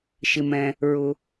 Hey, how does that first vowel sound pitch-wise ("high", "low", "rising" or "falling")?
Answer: low